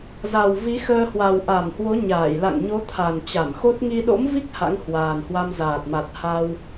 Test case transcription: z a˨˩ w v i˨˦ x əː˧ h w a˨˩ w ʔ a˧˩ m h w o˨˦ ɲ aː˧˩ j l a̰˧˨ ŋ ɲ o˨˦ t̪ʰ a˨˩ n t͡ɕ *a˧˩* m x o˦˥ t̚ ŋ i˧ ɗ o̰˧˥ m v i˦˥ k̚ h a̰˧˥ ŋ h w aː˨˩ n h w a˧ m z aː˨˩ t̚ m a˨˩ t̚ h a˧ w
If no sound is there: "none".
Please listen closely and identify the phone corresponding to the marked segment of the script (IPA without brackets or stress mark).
a˧˩